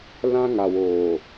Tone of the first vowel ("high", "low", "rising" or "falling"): high